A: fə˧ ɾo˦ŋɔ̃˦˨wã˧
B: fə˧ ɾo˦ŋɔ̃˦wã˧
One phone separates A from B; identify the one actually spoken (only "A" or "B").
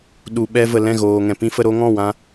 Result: A